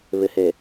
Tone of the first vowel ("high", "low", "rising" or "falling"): low